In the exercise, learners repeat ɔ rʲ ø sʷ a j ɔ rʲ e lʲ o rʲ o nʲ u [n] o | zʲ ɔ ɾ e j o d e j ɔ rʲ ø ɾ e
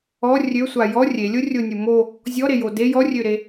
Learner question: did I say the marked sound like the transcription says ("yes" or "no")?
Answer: no